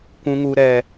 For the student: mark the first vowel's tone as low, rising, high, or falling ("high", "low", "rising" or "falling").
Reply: high